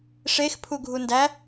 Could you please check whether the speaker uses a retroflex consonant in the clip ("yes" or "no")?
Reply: yes